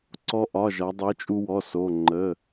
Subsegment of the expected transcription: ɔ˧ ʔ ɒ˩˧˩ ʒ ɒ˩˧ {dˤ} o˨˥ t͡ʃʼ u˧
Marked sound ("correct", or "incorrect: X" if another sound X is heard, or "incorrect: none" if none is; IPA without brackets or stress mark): correct